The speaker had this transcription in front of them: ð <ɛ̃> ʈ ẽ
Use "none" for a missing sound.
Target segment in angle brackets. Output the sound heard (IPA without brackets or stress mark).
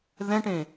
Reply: ɛ̃